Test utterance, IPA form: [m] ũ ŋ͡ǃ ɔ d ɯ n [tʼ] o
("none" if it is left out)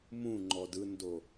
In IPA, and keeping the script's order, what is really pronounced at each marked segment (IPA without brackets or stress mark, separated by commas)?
m, d